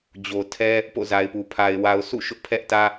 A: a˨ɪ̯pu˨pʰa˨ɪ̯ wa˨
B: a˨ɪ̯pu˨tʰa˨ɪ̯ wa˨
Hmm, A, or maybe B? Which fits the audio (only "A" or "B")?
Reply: A